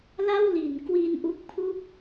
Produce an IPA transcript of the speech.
la˥˩wli˩˦n kwi˧nʔu˦˥k̚pʰu˥˩k̚

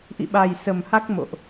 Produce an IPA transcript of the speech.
ʔḭ˧˨ɓa˨˩jsə˨˩m ha˦˥k̚mo̰˧˨ʔ

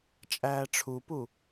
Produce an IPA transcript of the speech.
t͡ʃʼæːʈ͡ʂʰupu

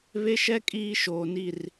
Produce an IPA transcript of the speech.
βe˦ʃɛ˦ kʼiː˦ʃoː˨ni˦˨r

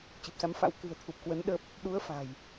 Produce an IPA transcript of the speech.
t͡ɕɨ˨˩p̚sa˨˦mfa̰˧˥w kɨ̤˨˩ə̯ t̪ʰu˨˩p̚ kwə˨˦n ɗə˦˥p̚ | ɗu˨˦ə̯ fa̤˨˩j

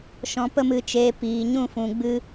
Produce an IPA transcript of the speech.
ʃɔ̃˧ pə˦mɨ˧t͡ʃeː˧ piː˨ɲũ˦˨fũ˨ ɡ͡bɨ˦

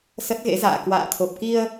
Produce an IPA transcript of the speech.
sə˦˥t̚ɣḛ˧˥za̰ː˧˨ kwa̰ː˧˨t̪ʰo˨˩p̚ki˧ə̯

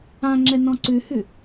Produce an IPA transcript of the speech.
ã ŋ͡ǁɛnɔ̃ǀʉhʉ

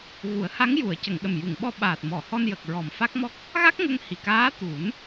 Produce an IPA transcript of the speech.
ɣu˨˩˦ə̯ha˧˥ŋ ju˨˩˨ə̯cə˨˩˨ŋɗə˨˩m ju˨˩˨ŋɓɔ˧ɓaː˨˩t̚ mɔ˨˩˨hɔ˧njə˨˩k̚ ɹɔ˨˩mfa˦˥k̚mɔ˦˥k̚ | ɣa˦˥k̚ŋə˧ŋhi˨˩kaː˧˥ t̪u˨˩˦n

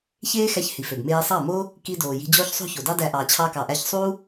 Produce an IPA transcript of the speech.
çeː˦ xæ˧ç hi˨fø˨b meː˧sˤɑ˦˨mo˦ | ki˧doː˨ ji̤˧d͡ʑoː˦çsˤo̤˦ ço˨dɑ˦dæ˧ʔɑː˨ t͡ɕʰɑ˧kɑ˨ʔæ˧ç sˤuː˦

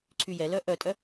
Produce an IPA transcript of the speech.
ǀʰyjɛlœ ʔœtʼœ

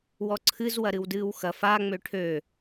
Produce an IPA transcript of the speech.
wɔǀʰɨz wɐɾɨwdɨːwxɐ fa ŋ͡møʈʰø

